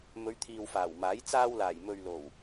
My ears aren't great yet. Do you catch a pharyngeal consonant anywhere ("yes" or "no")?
no